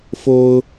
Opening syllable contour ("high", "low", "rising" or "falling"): high